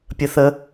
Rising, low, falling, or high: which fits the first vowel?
low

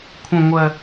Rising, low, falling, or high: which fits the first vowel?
high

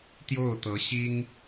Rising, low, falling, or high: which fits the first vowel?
falling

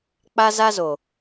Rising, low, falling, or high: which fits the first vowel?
high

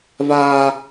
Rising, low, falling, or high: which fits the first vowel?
high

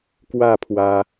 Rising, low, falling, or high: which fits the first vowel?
falling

